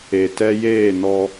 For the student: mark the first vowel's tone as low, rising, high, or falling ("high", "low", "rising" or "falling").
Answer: low